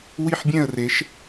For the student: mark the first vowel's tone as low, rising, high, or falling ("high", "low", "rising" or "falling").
falling